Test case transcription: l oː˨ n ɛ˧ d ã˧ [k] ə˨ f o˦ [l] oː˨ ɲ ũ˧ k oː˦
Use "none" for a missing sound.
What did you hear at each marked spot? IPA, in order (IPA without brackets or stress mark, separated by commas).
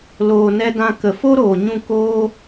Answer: k, ɾ